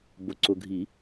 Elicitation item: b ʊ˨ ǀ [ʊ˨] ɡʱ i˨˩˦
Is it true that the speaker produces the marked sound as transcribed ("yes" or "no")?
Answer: yes